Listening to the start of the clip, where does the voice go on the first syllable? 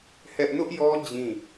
high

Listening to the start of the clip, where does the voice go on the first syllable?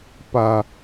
low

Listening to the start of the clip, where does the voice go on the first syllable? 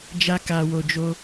high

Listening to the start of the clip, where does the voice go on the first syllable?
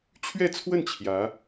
falling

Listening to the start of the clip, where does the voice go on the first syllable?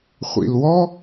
low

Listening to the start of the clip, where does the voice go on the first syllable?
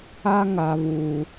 high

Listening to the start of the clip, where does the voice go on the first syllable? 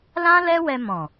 high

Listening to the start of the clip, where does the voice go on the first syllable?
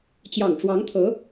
low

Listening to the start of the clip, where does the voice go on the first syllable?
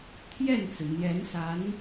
falling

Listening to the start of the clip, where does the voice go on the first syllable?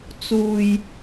low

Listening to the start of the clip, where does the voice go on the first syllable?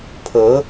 rising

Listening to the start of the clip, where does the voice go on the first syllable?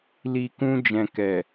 low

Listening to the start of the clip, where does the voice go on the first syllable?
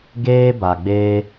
high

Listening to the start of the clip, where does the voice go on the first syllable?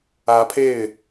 rising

